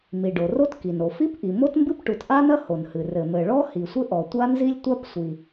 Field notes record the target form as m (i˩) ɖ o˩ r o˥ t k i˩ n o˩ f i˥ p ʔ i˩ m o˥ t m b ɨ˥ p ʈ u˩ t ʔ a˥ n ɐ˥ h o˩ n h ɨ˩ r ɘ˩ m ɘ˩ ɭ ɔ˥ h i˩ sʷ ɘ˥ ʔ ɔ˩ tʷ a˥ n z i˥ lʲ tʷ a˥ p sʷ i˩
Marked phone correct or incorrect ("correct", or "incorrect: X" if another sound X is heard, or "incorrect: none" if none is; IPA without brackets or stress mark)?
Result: correct